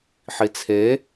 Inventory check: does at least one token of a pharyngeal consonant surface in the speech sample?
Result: yes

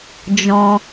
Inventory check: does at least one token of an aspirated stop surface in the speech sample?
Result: no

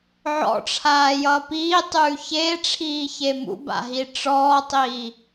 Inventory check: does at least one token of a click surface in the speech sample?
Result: no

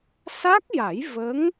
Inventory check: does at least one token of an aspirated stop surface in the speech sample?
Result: no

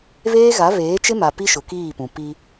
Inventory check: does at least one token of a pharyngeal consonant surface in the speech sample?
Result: no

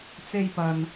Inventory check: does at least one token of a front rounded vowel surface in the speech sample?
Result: no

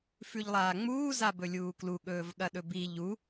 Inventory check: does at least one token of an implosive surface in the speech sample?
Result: yes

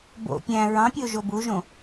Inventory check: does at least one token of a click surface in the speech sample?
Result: no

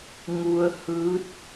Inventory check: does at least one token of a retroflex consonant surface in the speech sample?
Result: no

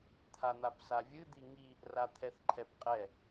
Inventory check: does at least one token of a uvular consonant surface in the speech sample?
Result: yes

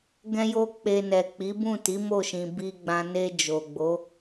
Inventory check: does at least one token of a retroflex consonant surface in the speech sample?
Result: no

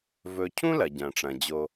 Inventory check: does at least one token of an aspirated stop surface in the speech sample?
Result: yes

